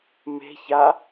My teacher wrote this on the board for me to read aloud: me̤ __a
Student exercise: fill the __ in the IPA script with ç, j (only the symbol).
ç